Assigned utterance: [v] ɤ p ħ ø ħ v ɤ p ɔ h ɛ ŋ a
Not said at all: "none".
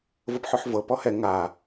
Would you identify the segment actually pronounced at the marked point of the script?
v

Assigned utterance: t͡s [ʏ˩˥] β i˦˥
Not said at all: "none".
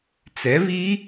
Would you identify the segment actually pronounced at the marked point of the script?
ɛ˩˥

